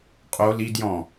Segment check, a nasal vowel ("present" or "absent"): present